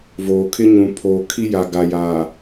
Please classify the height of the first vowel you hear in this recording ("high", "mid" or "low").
mid